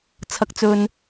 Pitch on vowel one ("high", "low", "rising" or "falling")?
high